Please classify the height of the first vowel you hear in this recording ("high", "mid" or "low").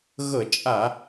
mid